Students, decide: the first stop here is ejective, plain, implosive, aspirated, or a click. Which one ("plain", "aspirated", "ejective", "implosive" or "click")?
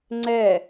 click